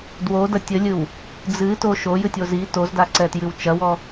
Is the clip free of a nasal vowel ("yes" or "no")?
yes